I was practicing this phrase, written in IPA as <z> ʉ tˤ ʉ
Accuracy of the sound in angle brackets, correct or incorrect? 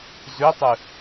correct